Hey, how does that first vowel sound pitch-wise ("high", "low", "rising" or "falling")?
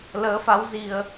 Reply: rising